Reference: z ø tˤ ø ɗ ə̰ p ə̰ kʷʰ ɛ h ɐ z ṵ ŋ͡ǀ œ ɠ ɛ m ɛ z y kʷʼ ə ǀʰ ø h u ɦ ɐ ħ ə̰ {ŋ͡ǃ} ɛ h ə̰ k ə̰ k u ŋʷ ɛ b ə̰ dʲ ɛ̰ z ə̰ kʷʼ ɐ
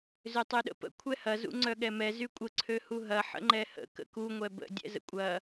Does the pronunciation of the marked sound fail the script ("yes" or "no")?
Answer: no